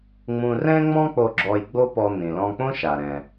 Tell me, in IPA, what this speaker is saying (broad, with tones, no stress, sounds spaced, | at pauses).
ŋ͡m ũ˧ r ɛ̃˥ ŋ͡m ɔ̃˥ k͡p o˧ ɡ͡ǁ ɔ˧ j ɡ͡b o˥ p ɔ˧ n̪ ĩ˩ l ɔ̃˧ k͡p õ˥ ʃ a˩ ɾ ɛ̃˩